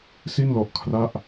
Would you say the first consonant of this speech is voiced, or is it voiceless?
voiceless